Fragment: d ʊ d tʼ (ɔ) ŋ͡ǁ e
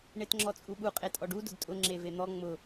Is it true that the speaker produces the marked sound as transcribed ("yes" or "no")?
no